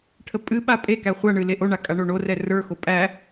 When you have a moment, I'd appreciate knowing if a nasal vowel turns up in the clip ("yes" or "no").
no